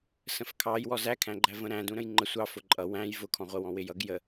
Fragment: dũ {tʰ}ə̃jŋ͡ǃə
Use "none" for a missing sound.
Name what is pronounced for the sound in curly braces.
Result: ɾ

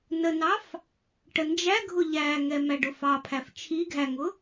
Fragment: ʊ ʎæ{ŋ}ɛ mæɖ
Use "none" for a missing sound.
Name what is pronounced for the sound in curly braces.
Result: ŋ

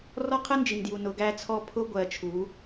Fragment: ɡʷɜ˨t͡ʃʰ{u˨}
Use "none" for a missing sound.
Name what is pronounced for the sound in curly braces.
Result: u˨˦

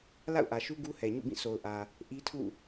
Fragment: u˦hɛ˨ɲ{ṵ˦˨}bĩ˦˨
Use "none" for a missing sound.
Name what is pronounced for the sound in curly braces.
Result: ṵ˦˨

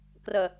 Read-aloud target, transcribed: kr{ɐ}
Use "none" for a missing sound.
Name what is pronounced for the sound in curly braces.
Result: ɐ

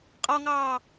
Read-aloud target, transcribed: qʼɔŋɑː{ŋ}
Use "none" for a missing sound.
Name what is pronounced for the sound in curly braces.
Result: none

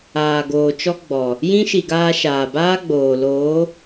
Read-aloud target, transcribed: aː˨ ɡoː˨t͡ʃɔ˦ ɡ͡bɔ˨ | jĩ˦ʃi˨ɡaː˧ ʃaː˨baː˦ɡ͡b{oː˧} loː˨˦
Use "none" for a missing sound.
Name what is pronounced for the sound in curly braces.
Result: oː˨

